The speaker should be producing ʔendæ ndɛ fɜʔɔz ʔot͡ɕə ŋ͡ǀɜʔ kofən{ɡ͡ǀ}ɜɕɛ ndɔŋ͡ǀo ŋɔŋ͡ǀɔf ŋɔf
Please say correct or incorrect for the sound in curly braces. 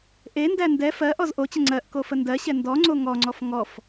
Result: incorrect